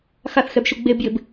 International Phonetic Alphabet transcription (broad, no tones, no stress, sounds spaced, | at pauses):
x a θ x ɛ b ʃ u ɡ͡b e b j ɪ b